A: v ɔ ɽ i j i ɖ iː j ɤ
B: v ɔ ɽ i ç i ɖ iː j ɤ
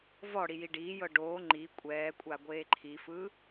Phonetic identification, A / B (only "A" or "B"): A